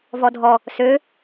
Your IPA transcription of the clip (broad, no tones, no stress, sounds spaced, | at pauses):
v ɔ dʱ ɔ | s ø